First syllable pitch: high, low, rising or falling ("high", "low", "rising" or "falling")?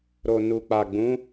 low